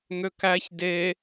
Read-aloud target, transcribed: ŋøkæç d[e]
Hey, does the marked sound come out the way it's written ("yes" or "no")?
yes